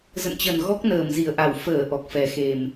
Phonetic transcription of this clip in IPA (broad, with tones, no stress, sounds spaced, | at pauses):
z ə̰˧˨ n t͡ɕ ə˨˩ n ɣ ɔ˦˥ k̚ n əː˧˩ m z i˧˩ ə̯ ʔ a˧˩ w f əː˧˩ ʔ ɔ˨˩ k̚ f ɛ˨˩ x e˨˩ m